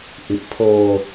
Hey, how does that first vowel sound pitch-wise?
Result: low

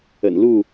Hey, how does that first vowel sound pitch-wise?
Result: low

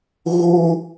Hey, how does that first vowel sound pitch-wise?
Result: high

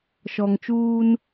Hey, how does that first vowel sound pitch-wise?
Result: low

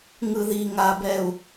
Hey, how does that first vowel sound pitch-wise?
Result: low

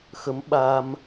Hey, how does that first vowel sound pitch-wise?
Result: rising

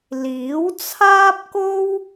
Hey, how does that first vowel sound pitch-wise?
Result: rising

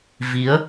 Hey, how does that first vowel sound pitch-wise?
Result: rising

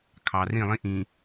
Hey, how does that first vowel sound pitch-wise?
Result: low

